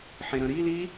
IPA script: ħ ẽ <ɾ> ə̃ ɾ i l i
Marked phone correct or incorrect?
correct